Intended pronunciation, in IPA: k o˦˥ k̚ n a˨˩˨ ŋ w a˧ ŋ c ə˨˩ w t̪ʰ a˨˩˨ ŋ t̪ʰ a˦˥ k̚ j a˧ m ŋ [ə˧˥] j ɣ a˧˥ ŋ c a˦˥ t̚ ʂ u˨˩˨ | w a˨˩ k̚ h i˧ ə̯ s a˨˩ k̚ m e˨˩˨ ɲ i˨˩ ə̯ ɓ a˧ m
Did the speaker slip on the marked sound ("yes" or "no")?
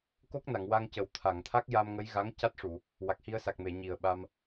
no